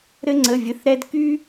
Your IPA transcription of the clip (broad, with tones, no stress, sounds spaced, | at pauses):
ɾ ɘ˥ ŋ͡ǀ ə˧˥˧ vʲ ɘ˧˥˧ θ ɾ ɛ˥ d k y˥